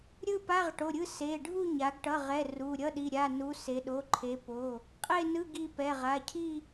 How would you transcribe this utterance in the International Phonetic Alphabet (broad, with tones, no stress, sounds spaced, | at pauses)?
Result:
ɾʲ ɯ˥˧ p a˧˥˧ ʁ ʈ o˩˧˩ ɾʲ ɯ˥˧ s e˩˧˩ ɖʱ u˥˧ ɲ a˩˧ ɡ ʈ ʌ˩˧˩ ʁ ɛ˩˧˩ r u˩˧˩ ɾʲ ʌ˧˥˧ ɗ i˩˧˩ ɾʲ a˩˧˩ n u˩˧ s e˩˧ ɗ o˩˧˩ ǃʰ e˩˧ p o˩˧˩ | qʼ e˥˧ n ɯ˧˥˧ ɡ i˩˧˩ p ɛ˩˧˩ ʁ a˩˧˩ cʰ i˥˧